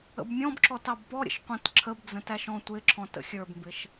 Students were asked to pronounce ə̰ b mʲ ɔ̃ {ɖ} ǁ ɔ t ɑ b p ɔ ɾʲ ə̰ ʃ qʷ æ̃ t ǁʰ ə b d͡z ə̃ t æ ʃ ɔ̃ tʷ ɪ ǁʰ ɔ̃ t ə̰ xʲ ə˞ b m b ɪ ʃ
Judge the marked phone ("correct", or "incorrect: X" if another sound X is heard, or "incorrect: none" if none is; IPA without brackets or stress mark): incorrect: b